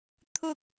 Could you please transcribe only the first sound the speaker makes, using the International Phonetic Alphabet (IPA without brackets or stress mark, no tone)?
t̪ʰ